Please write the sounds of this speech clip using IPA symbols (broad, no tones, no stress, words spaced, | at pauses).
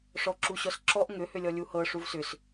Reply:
ʂɔǁuɕɔsǁɔʔ ŋʏ hʏlʲɔlʲuhɤ ʂuvsʏs